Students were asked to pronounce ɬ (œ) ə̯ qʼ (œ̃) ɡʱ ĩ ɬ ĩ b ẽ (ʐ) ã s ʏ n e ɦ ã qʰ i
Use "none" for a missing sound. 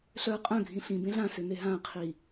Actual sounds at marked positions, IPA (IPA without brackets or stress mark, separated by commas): œ, œ̃, ɮ